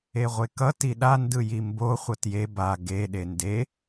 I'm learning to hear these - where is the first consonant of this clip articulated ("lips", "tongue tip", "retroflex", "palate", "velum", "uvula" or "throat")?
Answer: uvula